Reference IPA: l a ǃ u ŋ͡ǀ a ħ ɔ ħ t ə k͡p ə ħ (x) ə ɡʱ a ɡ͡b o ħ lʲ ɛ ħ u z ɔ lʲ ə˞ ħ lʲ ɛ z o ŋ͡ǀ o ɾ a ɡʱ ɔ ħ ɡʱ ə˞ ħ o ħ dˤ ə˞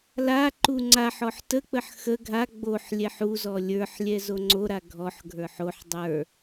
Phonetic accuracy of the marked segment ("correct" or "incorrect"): correct